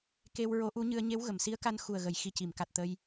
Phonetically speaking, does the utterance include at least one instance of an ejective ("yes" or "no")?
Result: no